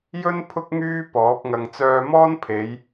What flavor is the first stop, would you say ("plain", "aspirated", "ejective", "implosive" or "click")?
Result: aspirated